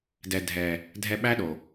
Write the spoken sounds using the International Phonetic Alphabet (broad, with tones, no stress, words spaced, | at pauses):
dɛ˨ dʱɛ˨ | dʱɛ˧ɓæ˦ɗo˨